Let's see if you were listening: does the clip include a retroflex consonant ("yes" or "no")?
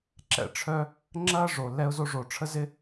yes